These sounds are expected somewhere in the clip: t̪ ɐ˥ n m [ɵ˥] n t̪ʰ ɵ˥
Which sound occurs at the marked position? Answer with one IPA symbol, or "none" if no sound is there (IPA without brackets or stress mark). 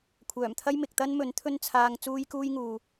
ɵ˨˥